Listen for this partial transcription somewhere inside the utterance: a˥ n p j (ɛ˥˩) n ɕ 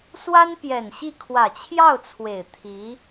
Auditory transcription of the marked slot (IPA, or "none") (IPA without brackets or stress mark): ɛ˨˩